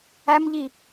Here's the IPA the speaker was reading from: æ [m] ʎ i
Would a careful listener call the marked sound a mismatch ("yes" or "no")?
no